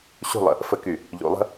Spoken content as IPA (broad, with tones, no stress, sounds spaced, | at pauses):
ɕ ṳ˦˨ lˠ ə̰˨ | f ə˨ k y˨ | ʎ ṵ˨ lˠ ə̤˦